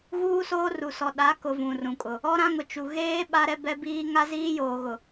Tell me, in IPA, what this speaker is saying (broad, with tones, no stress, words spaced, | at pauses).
ɣuː˦soː˦ru˨ sɔ˨ ɗa˨˦kʊ˨ vũ˨rũ˨kʼʊ˨ | ɔ˦ɾã˦ŋʊ˨ t͡ʃu˨ ɣeː˦ ɓa˦ɾɛ˦bɛ˦biː˦ ŋa˦ziː˦joː˨ɣʊ˨